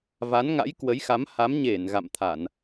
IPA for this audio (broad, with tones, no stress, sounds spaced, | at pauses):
v a˨˦ n ŋ a̰˧˥ j k w ə˨˦ j x a˨˦ m h a˨˦ m ɲ e˧˩ n ɣ a̰˧˨ m t̪ʰ a˧˩˨ n